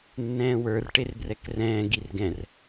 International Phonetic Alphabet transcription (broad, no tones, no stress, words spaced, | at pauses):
nːɛ̃ːwə˞r ʈerbrɛkrɛ̃ː ɡirɡɛ̃r